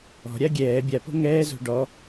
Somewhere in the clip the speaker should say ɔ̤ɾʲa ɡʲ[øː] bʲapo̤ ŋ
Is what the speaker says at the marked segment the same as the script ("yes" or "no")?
no